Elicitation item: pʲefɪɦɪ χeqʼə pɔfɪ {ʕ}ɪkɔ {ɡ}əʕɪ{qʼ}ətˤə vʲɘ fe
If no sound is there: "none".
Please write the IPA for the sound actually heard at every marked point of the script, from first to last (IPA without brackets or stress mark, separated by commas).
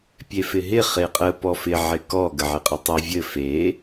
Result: ʕ, ɡ, qʼ